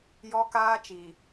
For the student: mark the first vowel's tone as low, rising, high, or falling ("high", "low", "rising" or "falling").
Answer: high